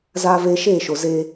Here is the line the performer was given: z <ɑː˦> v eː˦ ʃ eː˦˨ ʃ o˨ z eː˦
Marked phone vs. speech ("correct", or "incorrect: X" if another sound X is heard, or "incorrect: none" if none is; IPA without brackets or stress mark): incorrect: aː˦